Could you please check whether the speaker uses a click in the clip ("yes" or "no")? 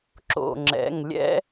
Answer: yes